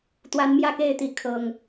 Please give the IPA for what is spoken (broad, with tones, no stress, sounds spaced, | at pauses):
t̪ w a˨˦ n m j ä˥˨ k e˥˨ ɪ̯ t̪ i˨˦ kʰ ɤ˨˩ ŋ